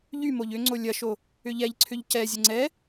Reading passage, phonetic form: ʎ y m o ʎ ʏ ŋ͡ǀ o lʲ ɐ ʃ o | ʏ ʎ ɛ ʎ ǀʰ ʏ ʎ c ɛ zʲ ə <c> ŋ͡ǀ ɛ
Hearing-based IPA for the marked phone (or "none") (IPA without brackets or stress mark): none